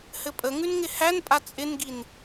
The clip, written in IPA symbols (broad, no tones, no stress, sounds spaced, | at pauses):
h ɘ pʼ ə ŋ ʉ n ŋ ɪ h æ n pʼ a t͡sʼ ɪ n ɡ i n